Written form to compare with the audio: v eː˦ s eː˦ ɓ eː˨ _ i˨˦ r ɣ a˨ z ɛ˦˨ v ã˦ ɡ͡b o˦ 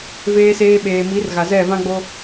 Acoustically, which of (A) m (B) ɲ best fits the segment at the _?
A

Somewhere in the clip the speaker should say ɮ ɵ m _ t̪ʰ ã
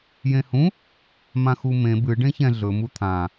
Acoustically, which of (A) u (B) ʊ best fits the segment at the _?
A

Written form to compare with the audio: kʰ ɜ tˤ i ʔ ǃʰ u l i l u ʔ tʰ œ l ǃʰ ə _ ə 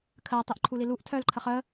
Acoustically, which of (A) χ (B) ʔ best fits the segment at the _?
A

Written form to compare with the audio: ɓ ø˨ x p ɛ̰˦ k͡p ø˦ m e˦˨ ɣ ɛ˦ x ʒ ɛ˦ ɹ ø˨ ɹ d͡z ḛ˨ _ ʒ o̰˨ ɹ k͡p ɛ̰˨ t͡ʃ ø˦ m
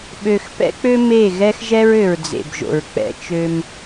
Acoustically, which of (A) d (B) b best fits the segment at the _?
B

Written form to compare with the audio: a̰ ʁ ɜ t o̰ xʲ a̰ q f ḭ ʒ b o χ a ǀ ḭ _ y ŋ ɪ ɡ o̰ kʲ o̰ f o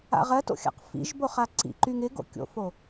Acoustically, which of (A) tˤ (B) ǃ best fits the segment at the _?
B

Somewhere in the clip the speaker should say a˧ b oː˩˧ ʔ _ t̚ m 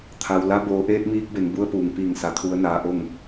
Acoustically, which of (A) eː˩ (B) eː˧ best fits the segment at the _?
B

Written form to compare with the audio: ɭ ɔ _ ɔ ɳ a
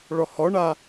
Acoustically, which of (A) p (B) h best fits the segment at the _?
B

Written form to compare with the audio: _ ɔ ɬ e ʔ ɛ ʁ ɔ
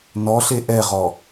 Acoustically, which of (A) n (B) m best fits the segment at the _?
A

